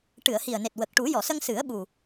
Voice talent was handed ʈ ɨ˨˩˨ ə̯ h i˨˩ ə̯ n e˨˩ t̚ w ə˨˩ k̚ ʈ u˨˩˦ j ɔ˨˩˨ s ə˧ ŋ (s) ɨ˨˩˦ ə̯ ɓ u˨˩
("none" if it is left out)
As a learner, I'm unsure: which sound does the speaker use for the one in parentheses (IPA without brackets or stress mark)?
s